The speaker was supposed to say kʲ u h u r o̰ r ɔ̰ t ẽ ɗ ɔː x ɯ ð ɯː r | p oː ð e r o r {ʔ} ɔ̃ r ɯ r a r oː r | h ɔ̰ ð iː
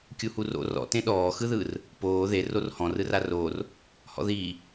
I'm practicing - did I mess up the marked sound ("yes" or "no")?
yes